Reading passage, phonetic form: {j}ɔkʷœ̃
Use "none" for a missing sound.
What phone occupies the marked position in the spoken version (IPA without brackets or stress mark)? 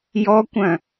j